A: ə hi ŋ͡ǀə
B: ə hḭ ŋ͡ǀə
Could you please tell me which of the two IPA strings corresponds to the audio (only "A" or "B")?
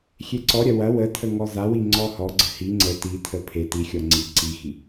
A